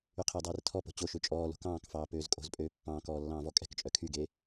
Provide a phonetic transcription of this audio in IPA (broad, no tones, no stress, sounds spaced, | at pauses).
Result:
y qʰ e dˤ ɛː r tʰ ɔ p o̤ t͡ɕ o ʃ ø t͡ʃʼ ɔː l o̤ k ɑ̃ː k f ɑː p øː z kʼ o̤ z pʼ øː pː ɑ̃ː k ɔː lː ɑ̃ː v ɔ kʼ ɛ̤ k t͡ʃʼ œ kʰ y ɡ e